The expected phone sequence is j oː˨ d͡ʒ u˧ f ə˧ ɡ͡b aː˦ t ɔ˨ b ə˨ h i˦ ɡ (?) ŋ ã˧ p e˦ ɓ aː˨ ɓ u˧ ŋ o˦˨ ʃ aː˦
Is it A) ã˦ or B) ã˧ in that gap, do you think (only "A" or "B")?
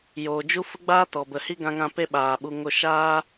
B